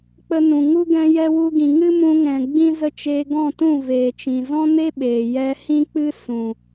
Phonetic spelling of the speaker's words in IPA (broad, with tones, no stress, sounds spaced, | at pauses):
k͡p ə˧ n ũ˨ ŋ u˧ ɡ ɛ̃˧ j ɛ˧ w u˧ ɡ ĩ˨ ŋ ɨ˦ m ũ˧ ŋ ɛ̃˨ ɡ͡b ĩ˦ z ə˦˨ t͡ʃ eː˧ ɡ ɔ̃˦˨ t ũ˦˨ v eː˨ t͡ʃ ĩ˨ z ɔ̃˦ n e˦ ɓ eː˨ j ɛ˧ h ĩ˦ k͡p ɨ˦ s ũ˨